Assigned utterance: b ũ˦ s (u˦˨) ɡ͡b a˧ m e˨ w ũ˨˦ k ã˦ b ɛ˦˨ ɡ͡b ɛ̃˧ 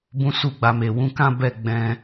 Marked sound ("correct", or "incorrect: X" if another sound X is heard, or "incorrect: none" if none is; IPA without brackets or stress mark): correct